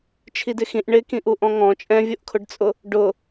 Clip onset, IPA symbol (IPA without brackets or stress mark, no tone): t͡ʃʰ